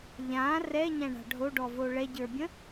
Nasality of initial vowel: nasal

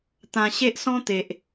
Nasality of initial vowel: nasal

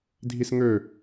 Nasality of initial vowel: oral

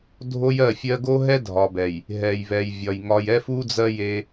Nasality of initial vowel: oral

